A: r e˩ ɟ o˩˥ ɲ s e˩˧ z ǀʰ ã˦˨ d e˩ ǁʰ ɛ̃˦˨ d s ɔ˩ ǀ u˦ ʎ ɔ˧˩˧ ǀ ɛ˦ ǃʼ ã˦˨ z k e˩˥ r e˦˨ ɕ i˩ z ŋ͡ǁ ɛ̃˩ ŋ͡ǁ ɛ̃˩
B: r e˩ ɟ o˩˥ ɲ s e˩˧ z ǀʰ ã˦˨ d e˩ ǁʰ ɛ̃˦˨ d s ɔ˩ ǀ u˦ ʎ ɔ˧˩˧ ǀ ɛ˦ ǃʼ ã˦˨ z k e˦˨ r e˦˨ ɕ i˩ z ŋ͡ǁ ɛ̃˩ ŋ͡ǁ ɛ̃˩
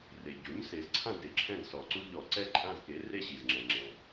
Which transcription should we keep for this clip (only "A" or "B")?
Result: A